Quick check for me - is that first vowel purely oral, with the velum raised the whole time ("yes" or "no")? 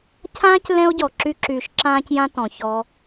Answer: no